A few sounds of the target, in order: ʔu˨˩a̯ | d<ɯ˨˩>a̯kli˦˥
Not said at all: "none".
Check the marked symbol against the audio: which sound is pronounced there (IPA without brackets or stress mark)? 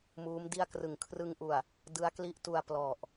ɯ˦˥